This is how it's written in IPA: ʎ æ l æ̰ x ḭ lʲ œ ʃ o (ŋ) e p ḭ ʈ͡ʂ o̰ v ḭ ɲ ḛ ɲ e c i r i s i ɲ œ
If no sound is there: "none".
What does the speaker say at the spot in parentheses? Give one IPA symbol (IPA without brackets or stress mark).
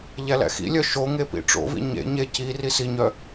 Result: ŋ